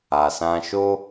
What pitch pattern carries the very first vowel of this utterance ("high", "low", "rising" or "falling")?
low